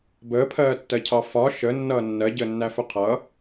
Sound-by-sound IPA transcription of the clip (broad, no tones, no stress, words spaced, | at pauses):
bəːpʰɜːtːɜcʰɑ fɒ ʃənːʌː nːɜɟəːnːæfʊ qʰʌ